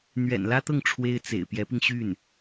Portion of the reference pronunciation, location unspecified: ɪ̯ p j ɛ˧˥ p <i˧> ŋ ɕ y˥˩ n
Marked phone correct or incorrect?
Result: correct